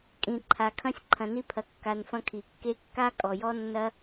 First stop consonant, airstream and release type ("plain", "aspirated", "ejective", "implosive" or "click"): ejective